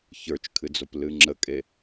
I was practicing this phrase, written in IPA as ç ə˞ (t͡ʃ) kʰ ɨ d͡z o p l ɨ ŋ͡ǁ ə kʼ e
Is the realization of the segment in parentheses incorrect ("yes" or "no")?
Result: no